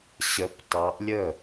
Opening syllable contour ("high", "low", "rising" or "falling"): rising